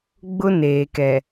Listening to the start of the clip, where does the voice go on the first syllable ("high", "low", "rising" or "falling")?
high